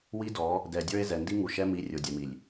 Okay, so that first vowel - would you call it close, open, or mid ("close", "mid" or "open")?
close